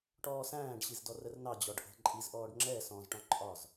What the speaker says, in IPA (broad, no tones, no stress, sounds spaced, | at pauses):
ʈ ɔː s æ̃ː ɖ ɕ i z d ɔ r ə r n ɑ d͡ʑ ɔ ɖ ʔ ə̤ ǃʼ i z ʔ ɔː ɖ ŋ͡ǁ ɛ s ɔ̃ z ʈ ɔ̃ ǃʼ ɒ z